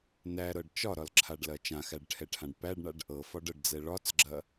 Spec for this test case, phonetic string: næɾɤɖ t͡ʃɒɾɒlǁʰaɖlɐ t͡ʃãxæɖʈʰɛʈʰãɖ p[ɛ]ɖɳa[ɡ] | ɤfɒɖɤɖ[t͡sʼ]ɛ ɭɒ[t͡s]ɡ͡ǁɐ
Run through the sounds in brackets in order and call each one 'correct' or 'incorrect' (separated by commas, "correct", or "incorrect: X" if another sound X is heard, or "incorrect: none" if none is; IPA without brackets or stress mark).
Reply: incorrect: æ, incorrect: ɖ, incorrect: d͡z, correct